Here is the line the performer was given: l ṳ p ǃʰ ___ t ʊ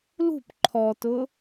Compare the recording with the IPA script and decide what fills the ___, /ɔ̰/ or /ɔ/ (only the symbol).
ɔ